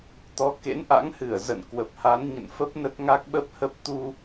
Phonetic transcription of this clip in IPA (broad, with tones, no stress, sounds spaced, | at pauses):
t̪ ɔ˨˦ k ḛ˧˥ n ʔ a̰˧˥ ŋ h ɨ˧˩ ə̯ z ə̰˧˨ n k w ə˨˩ p̚ h a˨˦ n ɲ ə̰˧˨ n f ə˦˥ p̚ n ə˦˥ t̚ ŋ a˦˥ k̚ ɓ ə˦˥ p̚ h ə˦˥ p̚ t̪ u˧